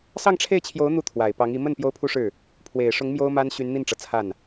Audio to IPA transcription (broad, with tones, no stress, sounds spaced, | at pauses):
s ɑ˥˧ ŋ ʈ͡ʂʰ e˥˩ ɪ̯ t͡ɕʰ j o˧˥ ʊ̯ n̪ u˥˩ t̪ʰ w a˨˩ ɪ̯ p ɑ˧˥ ŋ i˧˥ m ə˥˩ n p j o˥ ʊ̯ pʰ u˥ ʂ ɻ̩˥˩ | pʰ w e˨˩ ɪ̯ ʂ ʊ˧˥ ŋ m j o˥ ʊ̯ m a˥ n ɕ y˧˥ n n̪ i˥˩ n ʈ͡ʂ ɤ˩ t͡sʰ a˥˩ n